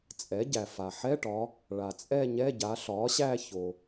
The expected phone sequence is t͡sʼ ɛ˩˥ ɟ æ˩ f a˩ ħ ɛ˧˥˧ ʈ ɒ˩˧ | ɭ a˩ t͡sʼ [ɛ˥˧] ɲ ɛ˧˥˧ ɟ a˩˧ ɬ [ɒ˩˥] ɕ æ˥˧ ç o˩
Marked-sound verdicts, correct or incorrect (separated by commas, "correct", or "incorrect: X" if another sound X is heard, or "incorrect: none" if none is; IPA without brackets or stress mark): correct, correct